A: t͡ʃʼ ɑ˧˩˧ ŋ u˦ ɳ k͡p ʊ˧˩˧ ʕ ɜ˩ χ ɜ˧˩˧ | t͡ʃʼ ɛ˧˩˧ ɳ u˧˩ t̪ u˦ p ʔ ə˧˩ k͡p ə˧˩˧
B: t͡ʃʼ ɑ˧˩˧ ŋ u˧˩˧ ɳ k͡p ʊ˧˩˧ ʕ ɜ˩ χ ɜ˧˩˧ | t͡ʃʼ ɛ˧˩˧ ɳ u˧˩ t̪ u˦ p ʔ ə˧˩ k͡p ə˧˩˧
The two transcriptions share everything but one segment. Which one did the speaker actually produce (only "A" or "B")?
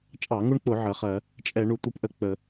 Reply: A